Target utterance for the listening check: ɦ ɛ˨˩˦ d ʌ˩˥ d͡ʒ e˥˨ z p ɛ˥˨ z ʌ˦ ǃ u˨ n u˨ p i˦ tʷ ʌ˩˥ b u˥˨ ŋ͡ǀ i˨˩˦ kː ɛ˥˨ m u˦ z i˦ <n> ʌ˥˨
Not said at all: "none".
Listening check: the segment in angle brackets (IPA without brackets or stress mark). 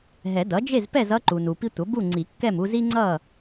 ŋ͡ǀ